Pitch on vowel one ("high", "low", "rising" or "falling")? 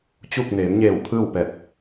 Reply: falling